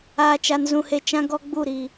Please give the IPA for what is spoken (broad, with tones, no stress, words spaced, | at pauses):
aː˨t͡ʃa˨n zũ˨he˨ t͡ʃã˦ɡɔ˦ ɡ͡bu˦˨ ɾiː˨